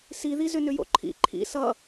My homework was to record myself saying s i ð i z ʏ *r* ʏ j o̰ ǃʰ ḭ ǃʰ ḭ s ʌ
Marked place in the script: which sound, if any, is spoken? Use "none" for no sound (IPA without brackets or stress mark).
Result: n